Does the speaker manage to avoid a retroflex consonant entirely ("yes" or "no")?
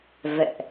yes